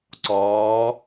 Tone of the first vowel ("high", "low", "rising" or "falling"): rising